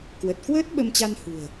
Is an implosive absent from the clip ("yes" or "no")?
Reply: no